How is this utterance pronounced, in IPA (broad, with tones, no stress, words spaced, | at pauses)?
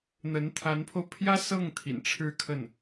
n̪ə˧˥n t̪ʰa˧˥npʰo˧ʊ̯ pʰjä˥ sɤ˥˩ŋ t̪ʰḭ˨˩nʈ͡ʂʰɻ̩˥kʰə˥˩n